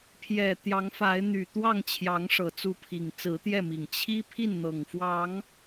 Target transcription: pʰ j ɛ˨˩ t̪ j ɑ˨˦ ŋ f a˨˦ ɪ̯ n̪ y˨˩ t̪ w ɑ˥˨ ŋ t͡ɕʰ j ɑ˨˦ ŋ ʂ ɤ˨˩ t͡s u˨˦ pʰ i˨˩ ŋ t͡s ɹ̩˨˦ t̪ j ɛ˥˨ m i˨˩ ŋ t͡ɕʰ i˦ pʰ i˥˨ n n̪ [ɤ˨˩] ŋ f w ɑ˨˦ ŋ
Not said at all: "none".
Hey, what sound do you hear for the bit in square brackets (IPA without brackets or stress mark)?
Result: ɤ˨˩